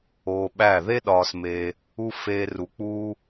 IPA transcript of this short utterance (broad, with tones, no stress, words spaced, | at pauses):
oː˧ɓæ˦˨ ðe˦ɗɒː˧smeː˧ | u˧ feː˧ru˧ k͡puː˧